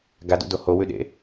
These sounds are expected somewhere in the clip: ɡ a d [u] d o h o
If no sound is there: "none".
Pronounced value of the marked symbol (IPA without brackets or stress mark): ṵ